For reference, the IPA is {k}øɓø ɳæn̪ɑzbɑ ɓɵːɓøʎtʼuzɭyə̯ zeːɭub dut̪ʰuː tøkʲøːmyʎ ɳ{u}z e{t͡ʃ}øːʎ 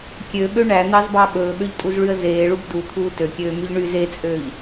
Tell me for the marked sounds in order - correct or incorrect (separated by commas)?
incorrect, incorrect, incorrect